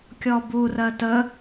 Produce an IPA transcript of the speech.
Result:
kʲ ɔ b u r ɜ t ə

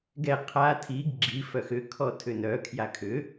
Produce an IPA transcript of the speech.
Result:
ɡ ɛ qʰ a tʰ i ɡ ɡ͡ǁ i f œ x ʏ kʰ ɔ tʰ ʏ n œ kʰ j a kʰ ʏ

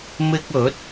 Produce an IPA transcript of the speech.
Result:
m ɪ˧ k̚ ɵ˨˥ t̚

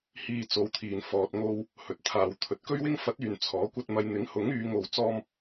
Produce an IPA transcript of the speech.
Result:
h iː˧ t͡s o˨˧ w t̪ʰ iː˨ n f ɔː˧ t̚ ŋ o˥ w | h ɵ˨ t̚ t̪ʰ aː˨ w t̪ʰ ɵ˨ t̚ k ɵ˥ ɥ w ɪ˥ ŋ f ɐ˨˥ t̚ yː˨ n t͡sʰ ɔː˨˥ kʷ ɐ˥ t̚ m ɐ˧ j n̪ ɪ˨˥ ŋ h ʊ˨˥ ŋ yː˨˧ ŋ o˧ w t͡s ɔː˥ m

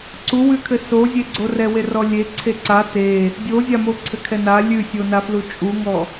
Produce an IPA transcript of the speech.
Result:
ǀ u w ʉ kʰ ɘ s o zʲ e ɡ͡ǀ o r ɛ w e r ɔ lʲ e ǀʰ e ǀ a t e | dʲ o zʲ a m o ǀʰ ɘ kʰ ɛ n a lʲ ʉ sʲ o n a f l u t͡ʃʼ u ŋ ɔ

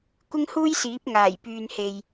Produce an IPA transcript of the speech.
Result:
kʷ ɪ˥ ŋ h uː˥ j s iː˨˥ p̚ ŋ aː˨˩ j p yː˨ n h e˨ j

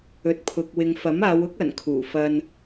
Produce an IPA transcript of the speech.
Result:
ɵ˨ t̚ pʰ ʊ˨ k̚ w ɪ˨ ŋ f ɐ˨˥ m aː˨˧ w ʊ˥ k̚ ɐ˨˩ n kʰ uː˨˩ f ɐ˧ n

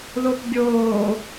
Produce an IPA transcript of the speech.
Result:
ð o p bʲ oː

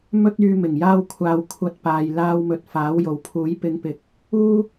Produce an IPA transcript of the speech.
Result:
m ɵ˥ t̚ yː˧ m ɪ˨˩ ŋ j aː˥ w kʷʰ aː˧ w kʷʰ ɐ˧ t̚ p aː˨ j l aː˧ w m ɵ˨ t̚ f aː˨˥ w j o˨˩ w pʰ uː˨˥ j p ɪ˨˧ ŋ p ɪ˨˥ k̚ | uː˥

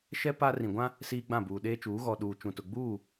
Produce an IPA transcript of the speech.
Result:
ʃ ɛ˦ p a˦ r ĩ˨ ɡʷ ã˦ | s iː˦ ɡ͡b ã˦˨ b uː˨ ɗ eː˦ t͡ʃ uː˨˦ ɣ ɔ˨ ɗ uː˨ t͡ʃ ũ˨ t ʊ˨ ɡ͡b uː˦˨

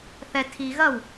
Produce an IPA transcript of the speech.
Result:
θ ɛ tʰ i ɣ ɐ w

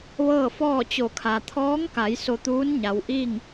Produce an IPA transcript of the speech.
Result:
ʋ ɤː˥˨ f ɔː˥˨ t͡ɕ o˧˩ kʰ a˩ t̪ʰ ɔː˧˥ ŋ k a˩˧ j s o˧ t̪ uː˧˥ n ɲ a˩˧ w ʔ iː˥˨ ŋ

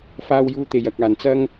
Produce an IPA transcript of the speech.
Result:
f aː˥ w j uː˥ t̪ e˧ j ɐ˨˥ k̚ aː˨ n t͡s ɐ˥ ŋ

